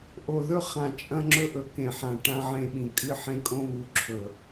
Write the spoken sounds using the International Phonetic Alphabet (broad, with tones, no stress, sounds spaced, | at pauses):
ʔ o˨ ð ɵ˦ χ ã˨ t͡ʃʼ ɐ̃˦ ŋ͡ǁ ɵ˦ ʔ ɵ˨ k ẽ˨ ħ ã˨ ʈ ã˦ ʕ ẽ˦ ɓ ĩ˨ kʼ ɨ˦ ħ ẽ˦ kʼ õ˦ β u˨ ǁʰ ɵ˨